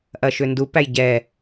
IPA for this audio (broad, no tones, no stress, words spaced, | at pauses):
ʔɐʃʏndupæj ɟɛ